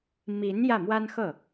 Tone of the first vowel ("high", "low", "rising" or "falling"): rising